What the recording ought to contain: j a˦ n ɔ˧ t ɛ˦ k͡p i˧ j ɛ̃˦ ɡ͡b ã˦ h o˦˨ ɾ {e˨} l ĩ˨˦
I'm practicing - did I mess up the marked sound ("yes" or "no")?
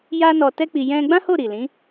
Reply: yes